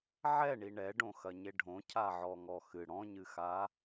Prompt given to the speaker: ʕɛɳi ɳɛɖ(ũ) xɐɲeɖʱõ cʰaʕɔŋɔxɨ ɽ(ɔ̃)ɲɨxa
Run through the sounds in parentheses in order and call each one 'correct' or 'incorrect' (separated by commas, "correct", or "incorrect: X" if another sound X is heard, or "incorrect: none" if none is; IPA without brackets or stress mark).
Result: incorrect: õ, correct